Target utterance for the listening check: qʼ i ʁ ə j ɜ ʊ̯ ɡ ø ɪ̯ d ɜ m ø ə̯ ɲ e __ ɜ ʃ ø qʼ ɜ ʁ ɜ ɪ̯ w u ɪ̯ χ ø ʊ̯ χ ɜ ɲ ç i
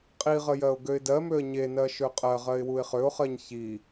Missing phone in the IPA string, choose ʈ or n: n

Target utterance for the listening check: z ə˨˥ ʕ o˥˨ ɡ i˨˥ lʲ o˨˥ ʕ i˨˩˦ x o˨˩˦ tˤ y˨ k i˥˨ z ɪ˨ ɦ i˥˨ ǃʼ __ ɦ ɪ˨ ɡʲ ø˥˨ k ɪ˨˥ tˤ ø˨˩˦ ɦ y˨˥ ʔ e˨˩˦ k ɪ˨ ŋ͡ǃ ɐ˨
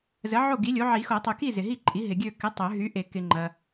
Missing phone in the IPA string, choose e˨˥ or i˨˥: i˨˥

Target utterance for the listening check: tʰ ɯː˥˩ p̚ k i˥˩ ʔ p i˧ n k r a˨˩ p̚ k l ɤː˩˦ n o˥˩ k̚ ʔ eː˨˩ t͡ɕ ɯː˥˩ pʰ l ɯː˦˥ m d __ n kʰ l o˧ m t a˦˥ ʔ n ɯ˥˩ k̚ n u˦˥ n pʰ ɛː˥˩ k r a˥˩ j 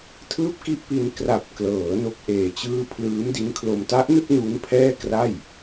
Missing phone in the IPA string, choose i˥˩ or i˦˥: i˦˥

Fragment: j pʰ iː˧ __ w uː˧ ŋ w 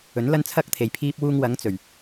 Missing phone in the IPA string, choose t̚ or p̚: p̚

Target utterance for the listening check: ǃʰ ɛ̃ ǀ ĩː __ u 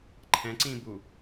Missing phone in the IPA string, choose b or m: b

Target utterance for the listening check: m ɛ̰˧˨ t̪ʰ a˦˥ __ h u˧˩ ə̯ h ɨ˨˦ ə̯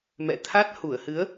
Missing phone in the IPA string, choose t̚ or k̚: t̚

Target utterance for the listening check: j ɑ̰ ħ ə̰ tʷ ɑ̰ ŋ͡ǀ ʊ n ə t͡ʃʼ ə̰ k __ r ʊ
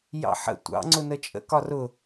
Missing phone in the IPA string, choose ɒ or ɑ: ɒ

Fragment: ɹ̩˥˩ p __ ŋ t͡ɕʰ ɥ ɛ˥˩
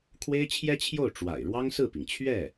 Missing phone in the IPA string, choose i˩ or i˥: i˩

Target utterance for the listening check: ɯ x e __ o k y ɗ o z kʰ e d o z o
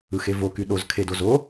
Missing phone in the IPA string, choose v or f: v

